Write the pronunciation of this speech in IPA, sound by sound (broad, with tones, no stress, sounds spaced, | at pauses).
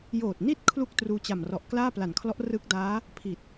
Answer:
j oː˨˩ t̚ n i˥˩ t̚ kʰ l u˥˩ k̚ t r uː˧ t͡ɕ a˨˩ m r ɔ˨˩ ʔ k l aː˥˩ p l a˨˩ n kʰ l ɔ˦˥ ʔ r ɯ˦˥ k̚ d aː˦˥ | pʰ i˨˩ t̚